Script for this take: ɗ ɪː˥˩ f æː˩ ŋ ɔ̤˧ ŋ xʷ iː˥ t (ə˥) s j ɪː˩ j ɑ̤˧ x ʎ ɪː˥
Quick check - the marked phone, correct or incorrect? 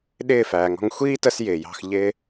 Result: correct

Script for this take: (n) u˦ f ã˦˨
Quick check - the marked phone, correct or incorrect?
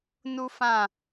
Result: correct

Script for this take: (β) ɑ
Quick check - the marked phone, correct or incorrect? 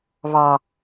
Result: correct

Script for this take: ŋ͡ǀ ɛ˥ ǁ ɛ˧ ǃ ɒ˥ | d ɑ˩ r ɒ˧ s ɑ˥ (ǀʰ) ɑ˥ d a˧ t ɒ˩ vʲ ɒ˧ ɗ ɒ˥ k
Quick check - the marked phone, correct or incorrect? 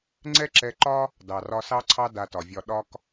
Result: correct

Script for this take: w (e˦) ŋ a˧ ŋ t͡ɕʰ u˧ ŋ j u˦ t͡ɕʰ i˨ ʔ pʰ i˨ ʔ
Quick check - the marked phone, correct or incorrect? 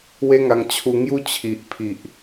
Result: correct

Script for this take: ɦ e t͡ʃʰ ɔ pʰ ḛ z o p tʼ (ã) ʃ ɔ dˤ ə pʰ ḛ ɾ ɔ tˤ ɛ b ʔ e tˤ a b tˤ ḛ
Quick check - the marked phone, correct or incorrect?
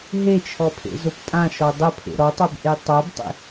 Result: correct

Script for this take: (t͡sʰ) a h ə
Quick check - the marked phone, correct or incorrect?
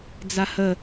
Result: incorrect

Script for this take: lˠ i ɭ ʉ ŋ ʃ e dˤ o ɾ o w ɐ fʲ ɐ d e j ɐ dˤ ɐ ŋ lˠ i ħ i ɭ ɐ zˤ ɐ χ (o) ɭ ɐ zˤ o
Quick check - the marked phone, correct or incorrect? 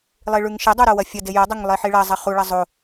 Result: incorrect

